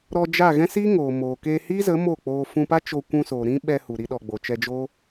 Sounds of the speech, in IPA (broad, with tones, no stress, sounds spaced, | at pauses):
ɾ ɔ˧ d͡ʒ a˦˨ ɣ ɛ̃˦ s iː˦ ŋ oː˨ m oː˨ k eː˧ h iː˦ z ə˨˦ m o˦˨ k͡p oː˧ f ũ˧ p a˦ t͡ʃ o˧ kʷ ũ˧ s oː˨ ɾ ĩ˦ ɓ ɛ˧ h u˨ ɾ i˧ ɗ ɔ˨ ɡ͡b o˨ t͡ʃ ɛ˧ d͡ʒ oː˦